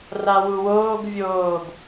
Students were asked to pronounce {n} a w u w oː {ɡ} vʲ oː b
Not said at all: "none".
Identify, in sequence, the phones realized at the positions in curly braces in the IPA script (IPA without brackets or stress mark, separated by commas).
r, ɡ